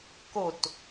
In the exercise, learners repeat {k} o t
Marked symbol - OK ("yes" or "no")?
yes